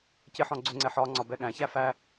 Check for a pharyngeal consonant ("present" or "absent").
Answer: present